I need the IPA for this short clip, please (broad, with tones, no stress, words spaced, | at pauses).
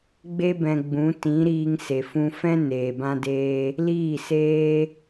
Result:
ɡ͡be˧bɛ̃˨ ɡ͡bũ˨˦ tĩ˨˦ɾiː˧ŋ se˨fũ˧ fɛ̃˦ neː˨bã˦deː˦ | liː˦˨seː˦